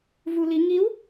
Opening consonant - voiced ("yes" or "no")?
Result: yes